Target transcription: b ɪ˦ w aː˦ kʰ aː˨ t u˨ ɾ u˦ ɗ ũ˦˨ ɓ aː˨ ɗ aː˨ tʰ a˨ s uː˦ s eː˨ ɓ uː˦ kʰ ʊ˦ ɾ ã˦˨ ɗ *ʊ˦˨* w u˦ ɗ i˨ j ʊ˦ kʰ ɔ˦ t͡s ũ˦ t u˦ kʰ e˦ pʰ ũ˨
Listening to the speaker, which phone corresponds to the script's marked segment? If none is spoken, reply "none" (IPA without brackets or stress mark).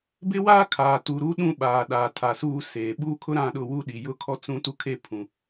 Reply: ʊ˦˨